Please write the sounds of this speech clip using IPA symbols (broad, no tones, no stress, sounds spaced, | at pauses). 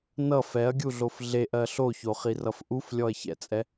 n ʌ f ɛ ɐ̯ ɡʲ u ɮ o f ɮ e ʔ ɜ ɬ o ç o χ i r ʌ f ʔ u f lʲ ɔ ɐ̯ ç ɛ̰ t͡sʼ ɛ